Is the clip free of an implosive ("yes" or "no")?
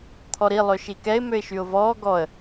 yes